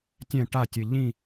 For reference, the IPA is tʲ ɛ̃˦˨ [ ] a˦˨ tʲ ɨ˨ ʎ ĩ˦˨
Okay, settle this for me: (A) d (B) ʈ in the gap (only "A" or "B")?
B